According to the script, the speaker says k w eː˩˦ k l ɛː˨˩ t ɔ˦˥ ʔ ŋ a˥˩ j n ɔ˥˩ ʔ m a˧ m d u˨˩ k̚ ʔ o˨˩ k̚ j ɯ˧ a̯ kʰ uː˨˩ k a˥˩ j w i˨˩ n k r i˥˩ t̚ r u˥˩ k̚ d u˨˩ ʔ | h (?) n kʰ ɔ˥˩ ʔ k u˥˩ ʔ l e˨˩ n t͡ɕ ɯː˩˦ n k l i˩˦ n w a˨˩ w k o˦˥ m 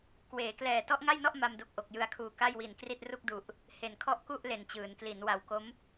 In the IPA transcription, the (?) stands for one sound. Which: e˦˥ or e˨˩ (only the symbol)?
e˨˩